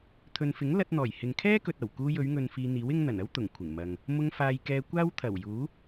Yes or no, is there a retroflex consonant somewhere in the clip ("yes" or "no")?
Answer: no